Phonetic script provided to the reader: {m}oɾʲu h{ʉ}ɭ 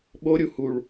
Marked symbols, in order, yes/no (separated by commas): no, no